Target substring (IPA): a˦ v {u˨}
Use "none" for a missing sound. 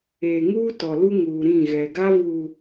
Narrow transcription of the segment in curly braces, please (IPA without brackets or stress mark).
uː˨